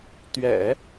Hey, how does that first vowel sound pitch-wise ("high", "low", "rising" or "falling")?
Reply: low